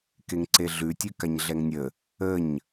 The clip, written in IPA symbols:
keŋǀeɮʉtʲʉ kaɲɮɛŋnʲə | əɲ

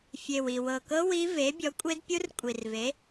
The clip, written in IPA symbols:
fʲe˨˩wi˨˩ wɤ˨˩kɤ˦˥ wi˦˥ ve˨˥ bʲɔ˨˥kʷʼe˦˥dpʲu˦˥r kʷʼi˨˩rve˨˥

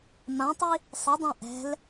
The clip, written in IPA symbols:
mãtˤi | sˤədˤã ʔɛ̤l

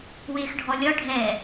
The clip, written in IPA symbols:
wɪːxɖʱɔlʲɒ ɖʱɛ

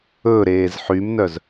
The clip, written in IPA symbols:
ɵ ɾeːzħymnœz

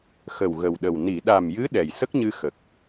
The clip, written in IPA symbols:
xə˨˩w ɣə˨˩wɗə˨˩w ni˨˩˨ ɗa˨˩mjɨ˧˥ ɗɛ˨˩jsə˦˥k̚ɲɨ˧ xə˨˩k̚

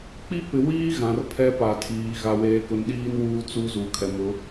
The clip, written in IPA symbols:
k͡pi˦pɪ˨ wiː˦ ɣã˨rpʰɛ˦pa˨tʰiː˨ ɣa˨weː˨kʊ˨nɗiː˦n wuː˦t͡su˦ zu˨kʰɛ˨mʊ˨˦

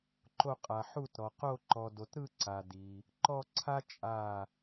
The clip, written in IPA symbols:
ǃo˧˩qʼa˩ ħu˧˩tɾɔ˩qo˧˩ ǃɔ˩do˩tɾɯ˧˩ ǀa˩di˩ | ǃɔ˧˩ǀʰa˧ t͡ʃʼa˧˩

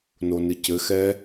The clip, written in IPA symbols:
nonɨcɘxɛ

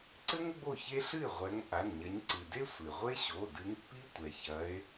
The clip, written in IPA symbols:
ǀɘ˥ŋ ɡ͡bo˥˩çe˥ɬɨ˥˩e̯ ʁʷɛ˨˦ŋ ʔa˩˧˩nɲɐ˨˦ɲ ǀɨ˩de˥ sʷe˩ʁʷe˥ɕo˩˧˩ dɨ˨˦ŋpːi˥ tʷɛ˩çɐ˨˦e̯

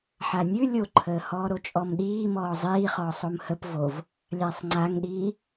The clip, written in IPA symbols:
ħanʲʉ lʲoǃʰəːhɔː ɾot͡ʃʼɔmɗiː mɔːzˤiːχɔːsˤ omhəp vov | lʲasˤŋ͡ǀaŋɗiː

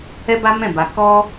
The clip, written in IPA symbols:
ɛ˦ba˦mɛ̃˦˨ba˧ kɔ˦

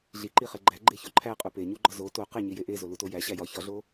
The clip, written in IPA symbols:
ɮiǃiχe ɡ͡ǃæ ɡ͡ǃeçoǃʰæ qʼupeɲu ɡ͡ǃɒzo to qeɲije ʔe zolutojæ ɕæjɒ çɒɮo

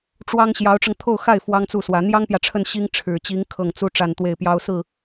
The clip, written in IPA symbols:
ʈ͡ʂwɑ˥ŋ ɕjɑ˧˥ʊ̯ʈ͡ʂɤ˧ŋ t̪ʰo˥˧ʊ̯xa˥˩ɪ̯ fwɑ˥ŋt͡su˥˩swä˧˥ n̪jɑ˥ŋpjä˨ʈ͡ʂʰə˥˩n ɕi˥ŋ ʈ͡ʂʰɻ̩˨˩t͡ɕi˧˥ŋ kʰɤ˥˩ŋt͡su˥ ʈ͡ʂa˥˧nt̪we˥˩ɪ̯pjɑ˥ʊ̯ sɹ̩˥˩

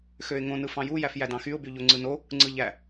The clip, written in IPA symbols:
xøɪ̯ŋõ nɯfɑ̃ju jæfjædɑ̃xyʊ̯ byʎoŋ͡ǀɯno | ŋ͡ǀɯʎæ

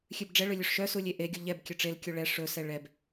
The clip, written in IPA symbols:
xʲʉbɖ͡ʐɛɭɵ lʲʉʂʃœsu lʲeʔeɡʲo ʎɛb kʲɵʈ͡ʂelkʲu ɭɛ ʂɵsɛ ɭɛb

